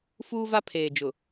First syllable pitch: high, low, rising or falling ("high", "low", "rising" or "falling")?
high